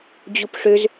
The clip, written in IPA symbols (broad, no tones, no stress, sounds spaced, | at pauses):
d͡ʑ u p ʂ ø z